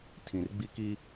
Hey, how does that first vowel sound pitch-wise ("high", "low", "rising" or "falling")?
low